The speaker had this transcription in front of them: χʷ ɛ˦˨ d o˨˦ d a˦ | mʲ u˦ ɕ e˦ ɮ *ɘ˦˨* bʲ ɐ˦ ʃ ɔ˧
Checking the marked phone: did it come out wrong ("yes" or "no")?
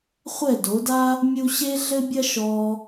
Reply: yes